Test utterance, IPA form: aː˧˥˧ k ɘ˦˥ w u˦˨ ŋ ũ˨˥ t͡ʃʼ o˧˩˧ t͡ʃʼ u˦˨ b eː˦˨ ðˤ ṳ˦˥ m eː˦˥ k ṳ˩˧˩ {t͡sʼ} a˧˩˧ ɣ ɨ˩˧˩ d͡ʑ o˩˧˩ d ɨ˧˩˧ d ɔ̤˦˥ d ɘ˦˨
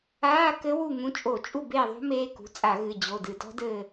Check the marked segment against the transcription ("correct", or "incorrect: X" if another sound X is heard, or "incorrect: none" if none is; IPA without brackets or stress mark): correct